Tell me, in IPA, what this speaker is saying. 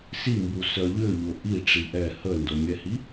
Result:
s i m b u s œ ʎ ʏ ʎ ʊ ʔ i ʈ͡ʂ i ʔ ɛ h ə n d o mʲ ɛ h i

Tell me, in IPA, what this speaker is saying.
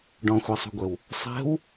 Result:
ɖ ɔ̃ xʷ a sˤ ṳ ɡʷ ɛ w | sˤ ɛ̤ w

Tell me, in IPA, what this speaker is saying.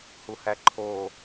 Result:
h u h æ ǃʰ o

